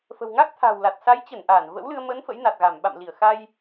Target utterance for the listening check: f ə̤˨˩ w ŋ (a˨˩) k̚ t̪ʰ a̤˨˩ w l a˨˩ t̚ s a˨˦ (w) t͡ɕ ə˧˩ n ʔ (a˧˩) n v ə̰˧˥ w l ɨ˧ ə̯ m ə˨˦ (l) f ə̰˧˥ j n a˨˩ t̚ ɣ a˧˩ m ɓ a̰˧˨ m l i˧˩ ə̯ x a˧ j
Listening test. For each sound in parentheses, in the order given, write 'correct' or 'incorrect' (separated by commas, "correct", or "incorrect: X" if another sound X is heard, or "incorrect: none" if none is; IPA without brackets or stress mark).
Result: incorrect: a˦˥, incorrect: j, incorrect: aː˧˩, incorrect: n